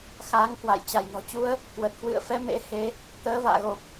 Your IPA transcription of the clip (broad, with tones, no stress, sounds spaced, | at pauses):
x a˨˦ ŋ k w a̰˧˨ j t͡ɕ a˧˩ j n ɔ̤˨˩ t͡ɕ u˧ ə̯ | k w ə˨˩ t̚ k w ɨ̰˧˨ ə̯ f ɛ˨˦ m ḛ˧˥ h e˧ | t̪ əː˨˦ v a̰ː˧˨ ɣ o˨˩ p̚